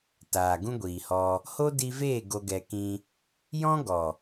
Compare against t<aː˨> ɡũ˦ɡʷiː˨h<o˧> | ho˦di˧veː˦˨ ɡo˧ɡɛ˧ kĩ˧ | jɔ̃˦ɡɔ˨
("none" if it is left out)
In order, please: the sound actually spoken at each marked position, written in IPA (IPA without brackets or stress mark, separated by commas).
aː˨, ɔ˧